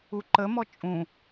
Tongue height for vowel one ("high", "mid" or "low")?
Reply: high